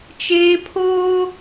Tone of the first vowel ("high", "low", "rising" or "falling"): high